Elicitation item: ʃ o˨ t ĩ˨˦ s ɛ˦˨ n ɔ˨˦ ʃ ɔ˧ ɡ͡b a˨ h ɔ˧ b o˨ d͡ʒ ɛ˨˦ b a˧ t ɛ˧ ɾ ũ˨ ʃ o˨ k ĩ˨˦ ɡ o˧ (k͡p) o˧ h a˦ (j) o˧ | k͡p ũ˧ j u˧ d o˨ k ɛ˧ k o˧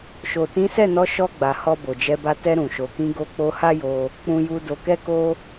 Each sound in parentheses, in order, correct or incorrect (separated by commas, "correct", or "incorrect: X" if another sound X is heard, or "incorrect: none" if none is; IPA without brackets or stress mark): correct, correct